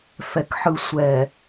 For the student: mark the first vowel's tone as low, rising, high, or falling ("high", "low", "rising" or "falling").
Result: low